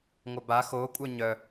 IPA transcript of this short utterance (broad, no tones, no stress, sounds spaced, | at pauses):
ŋʷ œ b a x o kʷʼ œ ɲ œ